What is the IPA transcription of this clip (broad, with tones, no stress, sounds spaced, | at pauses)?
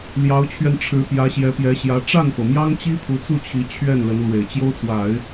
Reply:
l j ɑ˧˥ ʊ̯ t͡ɕʰ ɥ ɛ˧ n ʈ͡ʂʰ ɻ̩˧˥ p j ä˧˥ ɕ j ɛ˧˥ p j ɛ˧˥ ɕ j ä˧˥ ʈ͡ʂ a˥˩ n p ɤ˩ m j ɑ˥ ŋ t͡ɕ i˥ pʰ u˧˥ t͡s u˥˩ t͡ɕʰ i˧˥ t͡ɕʰ ɥ ɛ˥˩ n l ə˧˥ n l w e˨˩ ɪ̯ t͡ɕ j o˥ ʊ̯ t͡s w a˨˩˦ ɪ̯